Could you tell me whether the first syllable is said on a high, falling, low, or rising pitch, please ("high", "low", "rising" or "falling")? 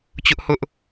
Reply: high